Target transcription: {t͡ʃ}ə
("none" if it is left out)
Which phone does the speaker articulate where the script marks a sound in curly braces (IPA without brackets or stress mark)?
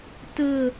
t